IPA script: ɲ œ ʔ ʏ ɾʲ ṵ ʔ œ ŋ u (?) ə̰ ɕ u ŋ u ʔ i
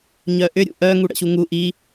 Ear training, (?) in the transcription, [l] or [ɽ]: ɽ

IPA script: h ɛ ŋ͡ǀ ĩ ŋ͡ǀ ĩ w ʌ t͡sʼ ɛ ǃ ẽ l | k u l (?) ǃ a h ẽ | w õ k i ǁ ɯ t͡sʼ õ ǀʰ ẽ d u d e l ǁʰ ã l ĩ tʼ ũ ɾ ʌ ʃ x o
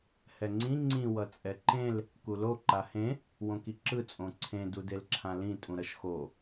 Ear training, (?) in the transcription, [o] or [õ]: o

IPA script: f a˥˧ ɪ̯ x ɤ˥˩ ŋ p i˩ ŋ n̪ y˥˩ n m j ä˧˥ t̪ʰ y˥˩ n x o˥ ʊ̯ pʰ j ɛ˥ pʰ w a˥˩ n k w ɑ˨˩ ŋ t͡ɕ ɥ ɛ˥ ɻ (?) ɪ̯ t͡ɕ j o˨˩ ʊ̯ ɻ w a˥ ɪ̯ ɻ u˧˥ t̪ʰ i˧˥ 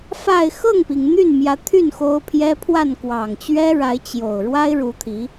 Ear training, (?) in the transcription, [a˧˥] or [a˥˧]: a˧˥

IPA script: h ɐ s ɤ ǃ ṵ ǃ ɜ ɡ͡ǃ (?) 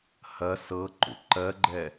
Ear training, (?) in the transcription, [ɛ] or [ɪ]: ɛ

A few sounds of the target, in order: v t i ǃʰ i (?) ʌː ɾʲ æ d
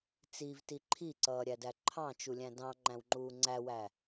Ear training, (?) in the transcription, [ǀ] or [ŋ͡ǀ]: ǀ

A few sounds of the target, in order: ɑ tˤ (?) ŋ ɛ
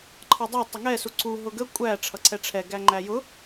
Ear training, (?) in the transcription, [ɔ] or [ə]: ə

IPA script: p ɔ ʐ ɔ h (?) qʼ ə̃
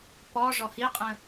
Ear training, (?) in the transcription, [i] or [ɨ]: i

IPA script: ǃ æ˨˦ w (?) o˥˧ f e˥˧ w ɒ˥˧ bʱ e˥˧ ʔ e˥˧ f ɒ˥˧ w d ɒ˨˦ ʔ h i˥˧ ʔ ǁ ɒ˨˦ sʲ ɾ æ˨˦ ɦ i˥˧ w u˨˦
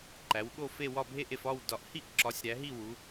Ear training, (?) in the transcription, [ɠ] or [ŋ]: ɠ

